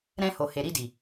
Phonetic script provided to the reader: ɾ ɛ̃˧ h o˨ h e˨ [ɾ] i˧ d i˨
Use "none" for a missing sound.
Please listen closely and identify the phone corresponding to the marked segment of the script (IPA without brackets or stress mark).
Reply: ɾ